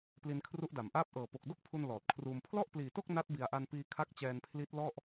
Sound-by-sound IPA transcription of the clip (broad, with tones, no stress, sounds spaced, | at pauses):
p l i˧ n kʰ r u˦˥ ʔ d a˨˩ m ʔ aː˥˩ p̚ ʔ ɤː˨˩ p o˨˩ k̚ d o˥˩ k̚ pʰ u˧ n l ɔː˨˩ t̚ kʰ r uː˧ m pʰ l ɔ˥˩ ʔ p l iː˨˩ t o˥˩ k̚ n a˦˥ t̚ b i˨˩ a̯ ʔ a˧ n p iː˧ kʰ a˦˥ k̚ t͡ɕ ɛː˧ n pʰ l i˦˥ t̚ l ɔ˥˩ ʔ